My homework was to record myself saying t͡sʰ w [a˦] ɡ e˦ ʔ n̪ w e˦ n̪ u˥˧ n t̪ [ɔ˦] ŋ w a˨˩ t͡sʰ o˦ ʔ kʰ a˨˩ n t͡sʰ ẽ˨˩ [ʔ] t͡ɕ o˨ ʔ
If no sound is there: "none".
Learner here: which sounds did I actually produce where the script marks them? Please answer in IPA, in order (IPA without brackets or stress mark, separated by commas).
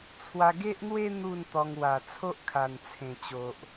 a˧, ɔ˧, none